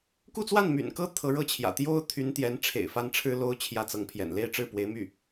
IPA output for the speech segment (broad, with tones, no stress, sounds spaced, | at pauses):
k u˥˧ t͡s w a˥˩ n m y̰˨˩ n k ɤ˥ t̪ʰ ɤ˧˥ ɻ ɤ˥ t͡ɕʰ j ä̰˨˩ t̪ j o˥ ʊ̯ t̪ʰ y˧˥ n t̪ j ɛ˧˥ n ʈ͡ʂʰ ḛ˨˩ ɪ̯ f a˥ n ʈ͡ʂʰ ɻ̩˥ l o˥ ʊ̯ t͡ɕʰ j ä˥˩ t͡s ɤ˧˥ ŋ pʰ j ɛ̰˨˩ n l e˥˧ ɪ̯ ʈ͡ʂ ɻ̩˥˩ p w e˧˥ ɪ̯ m y˥˩